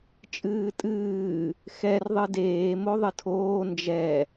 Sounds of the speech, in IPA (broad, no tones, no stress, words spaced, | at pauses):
t͡ʃʼɨːtʼɨː | xɛr ðˤɨdeː moðˤɨtʰoː nd͡ʒɛ